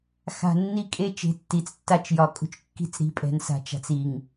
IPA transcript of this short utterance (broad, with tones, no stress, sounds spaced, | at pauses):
x a̤˨ nː i˦ kʼ e˦ t͡ʃ e̤˨ tː i˨ t͡s tː a˦ t͡ʃ j ɒ˨ kʼ ṳ˦ t͡ʃ kː i̤˦˨ t͡s ɾ i̤˨ pʼ ɛ̤˨ n s a̤˨ t͡ʃ a̤˨ t͡s i˨ ŋ